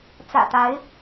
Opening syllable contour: low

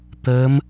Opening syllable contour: rising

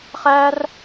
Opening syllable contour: high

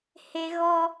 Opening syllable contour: high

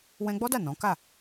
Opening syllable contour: high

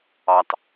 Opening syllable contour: low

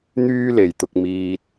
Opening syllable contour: high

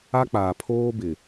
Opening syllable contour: high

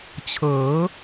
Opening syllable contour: rising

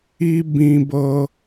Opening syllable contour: high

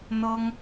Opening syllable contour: high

